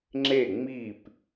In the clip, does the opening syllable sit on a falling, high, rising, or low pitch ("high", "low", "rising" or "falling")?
falling